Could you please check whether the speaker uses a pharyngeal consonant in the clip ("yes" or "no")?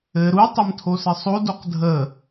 no